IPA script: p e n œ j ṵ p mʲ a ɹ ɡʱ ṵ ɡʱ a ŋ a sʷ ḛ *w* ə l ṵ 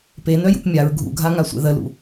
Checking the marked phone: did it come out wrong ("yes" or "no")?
yes